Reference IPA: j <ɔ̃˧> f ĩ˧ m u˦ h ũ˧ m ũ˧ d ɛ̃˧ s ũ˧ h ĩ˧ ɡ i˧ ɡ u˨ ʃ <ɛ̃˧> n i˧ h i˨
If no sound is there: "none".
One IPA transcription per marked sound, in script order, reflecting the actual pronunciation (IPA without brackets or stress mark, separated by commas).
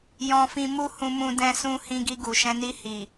ɔ̃˧, ɛ̃˧